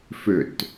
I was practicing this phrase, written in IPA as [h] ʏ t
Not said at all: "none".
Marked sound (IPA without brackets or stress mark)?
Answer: f